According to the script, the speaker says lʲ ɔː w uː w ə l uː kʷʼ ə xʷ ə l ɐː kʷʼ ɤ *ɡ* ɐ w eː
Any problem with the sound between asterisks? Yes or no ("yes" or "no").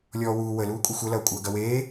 no